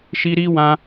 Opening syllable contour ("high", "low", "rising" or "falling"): high